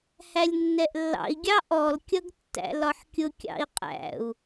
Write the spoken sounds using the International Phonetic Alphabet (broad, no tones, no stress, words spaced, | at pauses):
hælʲnːɛʔlːɑ̰i̯ ɡʲɑʔɔl kʲʌɡtːæ̰lɒħkʲʊ kʲɑ̰i̯qʼæ̰u̯